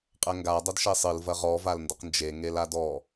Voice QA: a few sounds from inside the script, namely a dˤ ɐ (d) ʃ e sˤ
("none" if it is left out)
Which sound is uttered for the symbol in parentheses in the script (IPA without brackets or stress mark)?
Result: d